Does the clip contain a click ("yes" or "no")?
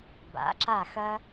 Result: yes